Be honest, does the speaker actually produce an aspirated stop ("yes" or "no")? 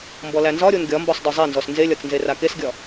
no